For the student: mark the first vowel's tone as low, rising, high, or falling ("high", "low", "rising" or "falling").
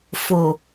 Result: low